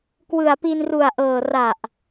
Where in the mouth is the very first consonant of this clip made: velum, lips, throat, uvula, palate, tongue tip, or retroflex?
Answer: velum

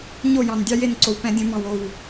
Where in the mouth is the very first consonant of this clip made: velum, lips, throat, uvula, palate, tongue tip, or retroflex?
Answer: palate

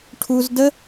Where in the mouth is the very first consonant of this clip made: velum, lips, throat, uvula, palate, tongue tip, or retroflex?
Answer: retroflex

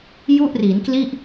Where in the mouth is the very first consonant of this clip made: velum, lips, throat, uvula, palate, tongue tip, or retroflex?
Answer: palate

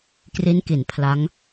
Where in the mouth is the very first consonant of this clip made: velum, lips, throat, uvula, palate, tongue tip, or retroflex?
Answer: velum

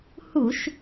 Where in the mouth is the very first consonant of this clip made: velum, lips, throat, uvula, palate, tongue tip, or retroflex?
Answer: throat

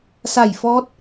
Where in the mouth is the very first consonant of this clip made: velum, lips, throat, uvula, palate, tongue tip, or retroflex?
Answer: tongue tip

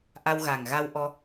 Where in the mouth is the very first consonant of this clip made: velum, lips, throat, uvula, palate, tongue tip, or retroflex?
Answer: throat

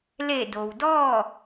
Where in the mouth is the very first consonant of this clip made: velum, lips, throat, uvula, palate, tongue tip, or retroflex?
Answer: tongue tip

